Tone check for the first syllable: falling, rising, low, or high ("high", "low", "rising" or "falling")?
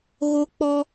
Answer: high